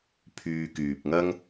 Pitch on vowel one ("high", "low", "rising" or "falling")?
low